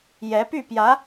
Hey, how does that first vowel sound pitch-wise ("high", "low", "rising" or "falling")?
rising